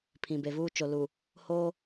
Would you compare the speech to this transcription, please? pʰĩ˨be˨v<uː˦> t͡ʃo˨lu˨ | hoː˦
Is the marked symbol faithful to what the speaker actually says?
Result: yes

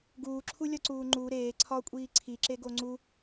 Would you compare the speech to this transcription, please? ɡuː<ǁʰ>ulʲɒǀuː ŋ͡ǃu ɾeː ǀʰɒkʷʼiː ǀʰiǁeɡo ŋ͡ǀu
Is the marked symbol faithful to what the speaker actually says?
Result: yes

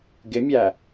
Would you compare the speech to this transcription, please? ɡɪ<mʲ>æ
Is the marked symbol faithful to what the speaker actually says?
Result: yes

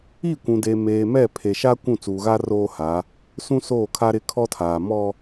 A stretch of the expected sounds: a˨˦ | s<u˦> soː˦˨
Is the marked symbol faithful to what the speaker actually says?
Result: no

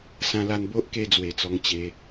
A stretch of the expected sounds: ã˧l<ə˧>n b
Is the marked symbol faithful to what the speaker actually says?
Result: no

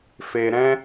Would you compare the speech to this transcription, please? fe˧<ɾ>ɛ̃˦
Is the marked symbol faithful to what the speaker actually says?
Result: yes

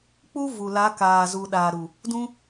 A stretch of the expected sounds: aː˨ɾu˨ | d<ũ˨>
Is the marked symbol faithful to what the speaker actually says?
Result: no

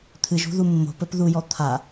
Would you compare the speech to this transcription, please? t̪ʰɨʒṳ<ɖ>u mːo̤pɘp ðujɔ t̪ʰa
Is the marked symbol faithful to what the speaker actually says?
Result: no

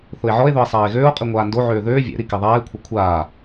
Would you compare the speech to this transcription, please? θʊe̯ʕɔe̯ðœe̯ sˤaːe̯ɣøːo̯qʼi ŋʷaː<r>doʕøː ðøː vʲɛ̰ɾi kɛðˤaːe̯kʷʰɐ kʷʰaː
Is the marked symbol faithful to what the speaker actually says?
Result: no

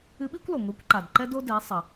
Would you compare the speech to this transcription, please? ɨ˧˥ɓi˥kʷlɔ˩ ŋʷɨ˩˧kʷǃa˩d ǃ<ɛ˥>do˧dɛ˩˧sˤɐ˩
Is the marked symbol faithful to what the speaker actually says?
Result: no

